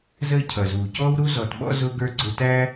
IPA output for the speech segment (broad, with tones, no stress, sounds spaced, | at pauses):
z əː˦ cʰ ʌ˨ z uː˨ c ɔː˥ w ɾ u˦ z ɔ˨ t ɓ ɔ̰˦ z ʊ˥ ɡ ə˞˥ ɡ͡ǀ ʊ˦ t æ˥